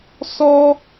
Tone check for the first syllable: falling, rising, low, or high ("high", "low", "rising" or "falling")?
high